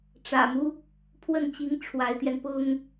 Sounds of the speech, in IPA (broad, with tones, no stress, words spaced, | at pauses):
ʈ͡ʂä̰˨˩mu˦ | pʰwə˥˩nt͡ɕi˧˥ŋ ʈ͡ʂʰwa˧˥ɪ̯t̪jɛ˧n pʊ˥ŋ